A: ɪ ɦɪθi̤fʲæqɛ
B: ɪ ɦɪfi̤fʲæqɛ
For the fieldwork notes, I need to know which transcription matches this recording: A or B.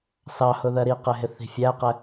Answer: A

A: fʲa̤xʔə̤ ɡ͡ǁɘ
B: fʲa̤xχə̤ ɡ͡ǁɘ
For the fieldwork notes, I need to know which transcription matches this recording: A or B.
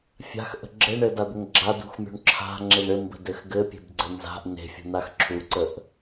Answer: A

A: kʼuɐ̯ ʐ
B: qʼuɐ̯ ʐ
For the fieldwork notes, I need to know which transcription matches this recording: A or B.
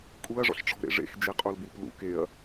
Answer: A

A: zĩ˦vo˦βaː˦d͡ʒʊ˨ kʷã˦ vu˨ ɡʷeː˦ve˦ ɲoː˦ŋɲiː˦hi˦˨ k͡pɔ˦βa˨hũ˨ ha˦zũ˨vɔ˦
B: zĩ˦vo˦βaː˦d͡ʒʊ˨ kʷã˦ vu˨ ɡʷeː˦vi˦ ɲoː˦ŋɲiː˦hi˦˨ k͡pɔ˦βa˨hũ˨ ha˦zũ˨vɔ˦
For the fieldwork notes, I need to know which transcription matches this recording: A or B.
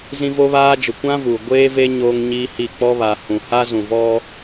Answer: A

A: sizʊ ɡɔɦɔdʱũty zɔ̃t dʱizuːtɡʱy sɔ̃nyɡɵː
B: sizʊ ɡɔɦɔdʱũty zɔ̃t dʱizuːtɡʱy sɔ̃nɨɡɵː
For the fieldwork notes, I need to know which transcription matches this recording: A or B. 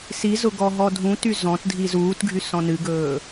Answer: B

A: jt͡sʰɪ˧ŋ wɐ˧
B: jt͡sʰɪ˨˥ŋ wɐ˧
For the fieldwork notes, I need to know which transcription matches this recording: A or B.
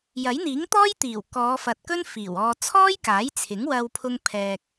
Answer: B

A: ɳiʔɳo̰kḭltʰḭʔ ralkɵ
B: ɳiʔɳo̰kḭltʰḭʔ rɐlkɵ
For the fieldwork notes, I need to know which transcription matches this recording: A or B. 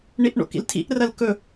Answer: B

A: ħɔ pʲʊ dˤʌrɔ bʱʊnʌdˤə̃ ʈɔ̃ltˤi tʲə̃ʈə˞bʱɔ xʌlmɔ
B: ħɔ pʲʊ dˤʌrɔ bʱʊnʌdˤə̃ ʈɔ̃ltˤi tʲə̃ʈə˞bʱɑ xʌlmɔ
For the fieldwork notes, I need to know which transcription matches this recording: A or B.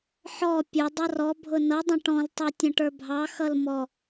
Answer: B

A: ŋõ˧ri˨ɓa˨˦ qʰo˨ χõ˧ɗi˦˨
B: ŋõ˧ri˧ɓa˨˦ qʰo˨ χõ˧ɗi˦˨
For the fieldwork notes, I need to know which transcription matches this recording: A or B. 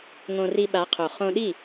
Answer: B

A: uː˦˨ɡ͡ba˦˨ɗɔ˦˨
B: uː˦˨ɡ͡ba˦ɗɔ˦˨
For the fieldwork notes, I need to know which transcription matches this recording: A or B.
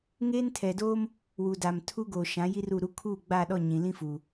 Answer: A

